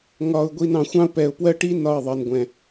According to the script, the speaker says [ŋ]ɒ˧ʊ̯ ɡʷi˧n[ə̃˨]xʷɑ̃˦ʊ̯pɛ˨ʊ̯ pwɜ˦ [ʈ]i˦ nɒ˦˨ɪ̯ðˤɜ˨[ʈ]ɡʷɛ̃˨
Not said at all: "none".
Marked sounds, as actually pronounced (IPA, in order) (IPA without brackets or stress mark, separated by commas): ŋ, ɑ̃˨, ʈ, n